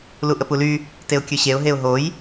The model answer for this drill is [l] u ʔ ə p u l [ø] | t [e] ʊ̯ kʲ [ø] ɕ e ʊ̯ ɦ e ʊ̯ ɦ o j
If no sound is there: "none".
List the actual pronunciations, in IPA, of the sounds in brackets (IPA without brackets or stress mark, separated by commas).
l, y, e, ø